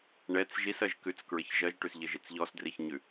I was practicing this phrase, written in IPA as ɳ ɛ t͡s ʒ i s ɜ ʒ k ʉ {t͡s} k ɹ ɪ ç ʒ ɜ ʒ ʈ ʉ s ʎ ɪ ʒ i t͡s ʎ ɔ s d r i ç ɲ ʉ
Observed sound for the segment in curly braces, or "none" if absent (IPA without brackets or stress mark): t͡s